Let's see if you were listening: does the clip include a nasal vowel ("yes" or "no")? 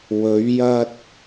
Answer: no